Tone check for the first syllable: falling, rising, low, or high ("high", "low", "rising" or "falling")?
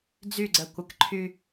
falling